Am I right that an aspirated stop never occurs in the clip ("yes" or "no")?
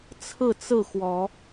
no